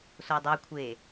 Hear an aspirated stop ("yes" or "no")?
yes